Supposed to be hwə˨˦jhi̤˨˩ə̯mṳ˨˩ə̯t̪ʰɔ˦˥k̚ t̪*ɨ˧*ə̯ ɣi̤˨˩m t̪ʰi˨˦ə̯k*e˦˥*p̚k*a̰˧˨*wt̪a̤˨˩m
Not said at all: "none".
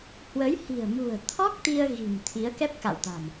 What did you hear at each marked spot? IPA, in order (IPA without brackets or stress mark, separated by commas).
i˧, ɛ˦˥, a̰˧˨